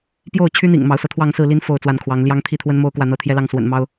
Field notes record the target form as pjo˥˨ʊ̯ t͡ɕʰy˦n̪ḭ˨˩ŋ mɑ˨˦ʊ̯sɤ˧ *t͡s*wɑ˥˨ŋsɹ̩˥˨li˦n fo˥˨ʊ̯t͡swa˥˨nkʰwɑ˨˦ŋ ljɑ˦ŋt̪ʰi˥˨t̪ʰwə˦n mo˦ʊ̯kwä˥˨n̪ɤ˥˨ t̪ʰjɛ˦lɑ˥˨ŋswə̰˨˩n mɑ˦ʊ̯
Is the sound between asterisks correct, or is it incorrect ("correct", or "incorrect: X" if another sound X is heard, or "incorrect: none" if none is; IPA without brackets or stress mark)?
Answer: incorrect: t̪ʰ